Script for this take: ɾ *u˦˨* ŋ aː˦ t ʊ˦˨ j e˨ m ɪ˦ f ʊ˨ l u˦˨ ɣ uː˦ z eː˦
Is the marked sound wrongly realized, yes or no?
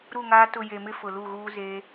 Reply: no